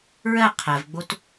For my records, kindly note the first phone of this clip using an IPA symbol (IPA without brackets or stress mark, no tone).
ɹ